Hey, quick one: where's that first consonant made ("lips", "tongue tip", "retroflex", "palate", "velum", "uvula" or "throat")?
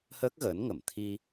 throat